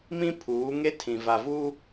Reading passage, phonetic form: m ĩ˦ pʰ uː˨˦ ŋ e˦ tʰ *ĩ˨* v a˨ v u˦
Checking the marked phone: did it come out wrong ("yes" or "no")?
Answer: no